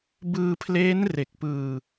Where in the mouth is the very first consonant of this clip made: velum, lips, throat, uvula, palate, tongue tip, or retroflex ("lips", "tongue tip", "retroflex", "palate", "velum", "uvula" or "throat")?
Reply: lips